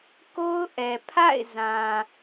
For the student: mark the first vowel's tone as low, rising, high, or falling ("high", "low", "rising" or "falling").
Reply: high